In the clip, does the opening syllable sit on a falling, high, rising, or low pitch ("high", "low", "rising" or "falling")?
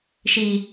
high